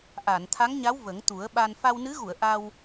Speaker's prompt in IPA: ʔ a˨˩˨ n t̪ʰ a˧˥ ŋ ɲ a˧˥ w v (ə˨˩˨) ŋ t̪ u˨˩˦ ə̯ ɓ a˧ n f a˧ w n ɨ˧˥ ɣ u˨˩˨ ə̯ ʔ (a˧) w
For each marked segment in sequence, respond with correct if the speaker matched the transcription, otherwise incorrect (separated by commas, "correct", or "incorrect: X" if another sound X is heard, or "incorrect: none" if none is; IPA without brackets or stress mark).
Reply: incorrect: ə˨˩˦, correct